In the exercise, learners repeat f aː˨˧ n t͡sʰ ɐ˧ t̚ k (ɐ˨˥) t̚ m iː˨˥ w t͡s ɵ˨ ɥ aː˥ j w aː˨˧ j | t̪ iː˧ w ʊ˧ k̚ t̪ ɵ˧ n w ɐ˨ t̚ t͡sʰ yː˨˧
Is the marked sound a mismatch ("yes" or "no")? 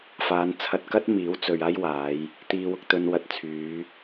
yes